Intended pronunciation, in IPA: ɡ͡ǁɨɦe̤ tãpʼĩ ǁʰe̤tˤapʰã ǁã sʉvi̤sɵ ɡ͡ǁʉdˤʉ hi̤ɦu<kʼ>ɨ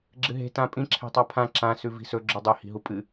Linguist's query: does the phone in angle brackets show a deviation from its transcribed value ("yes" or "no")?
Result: yes